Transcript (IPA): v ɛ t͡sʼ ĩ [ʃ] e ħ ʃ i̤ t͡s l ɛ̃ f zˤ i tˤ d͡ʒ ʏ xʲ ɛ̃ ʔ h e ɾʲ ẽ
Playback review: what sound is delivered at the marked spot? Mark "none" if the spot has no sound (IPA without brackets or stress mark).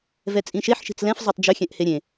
ʃ